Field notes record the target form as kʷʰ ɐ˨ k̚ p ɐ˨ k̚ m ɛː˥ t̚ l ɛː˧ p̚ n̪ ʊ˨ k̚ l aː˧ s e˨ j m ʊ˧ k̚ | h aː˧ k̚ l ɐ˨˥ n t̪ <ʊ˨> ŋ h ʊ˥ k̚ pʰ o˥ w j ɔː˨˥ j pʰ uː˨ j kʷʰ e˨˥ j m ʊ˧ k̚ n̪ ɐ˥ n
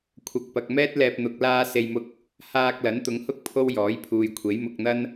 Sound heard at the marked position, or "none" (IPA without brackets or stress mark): ʊ˨˧